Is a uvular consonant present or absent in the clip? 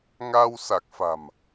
absent